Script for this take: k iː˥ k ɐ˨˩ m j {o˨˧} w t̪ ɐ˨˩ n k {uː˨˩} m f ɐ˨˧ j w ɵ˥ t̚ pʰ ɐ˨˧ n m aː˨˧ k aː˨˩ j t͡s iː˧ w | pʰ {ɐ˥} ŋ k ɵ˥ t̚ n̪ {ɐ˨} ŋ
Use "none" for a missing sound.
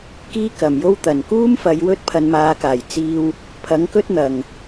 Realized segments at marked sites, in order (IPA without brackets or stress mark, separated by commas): o˥, uː˥, ɐ˨˥, ɐ˨